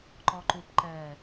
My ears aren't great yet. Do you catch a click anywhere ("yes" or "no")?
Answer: yes